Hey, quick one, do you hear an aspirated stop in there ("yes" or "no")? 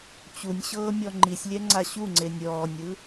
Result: no